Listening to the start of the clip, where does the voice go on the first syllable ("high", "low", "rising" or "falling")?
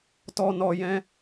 low